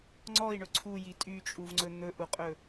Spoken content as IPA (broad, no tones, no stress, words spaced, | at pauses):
ŋ͡ǀɔi̯ɳɵ ǀʰuji tʼyt͡ʃʼuvŋ͡ǀɵ n̪ɵʔuqʼɵ